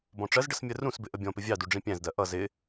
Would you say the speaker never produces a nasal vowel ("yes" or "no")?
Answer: no